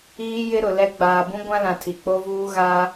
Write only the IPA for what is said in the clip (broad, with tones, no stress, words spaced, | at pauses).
iː˦jɪ˦ɾʊ˨lɛ˦ ɡ͡baː˨bũ˦ɡʷã˦ lã˨ tʰi˨k͡po˦vuː˦ ɣa˦